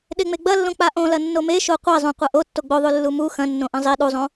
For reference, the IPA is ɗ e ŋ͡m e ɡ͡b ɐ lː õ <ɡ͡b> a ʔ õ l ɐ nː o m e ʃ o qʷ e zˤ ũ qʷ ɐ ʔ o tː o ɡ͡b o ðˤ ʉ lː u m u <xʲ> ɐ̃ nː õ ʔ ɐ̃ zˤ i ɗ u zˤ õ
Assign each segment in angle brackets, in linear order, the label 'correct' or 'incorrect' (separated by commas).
incorrect, incorrect